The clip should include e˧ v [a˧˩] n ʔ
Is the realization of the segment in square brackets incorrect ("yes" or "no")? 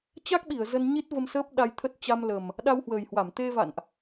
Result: yes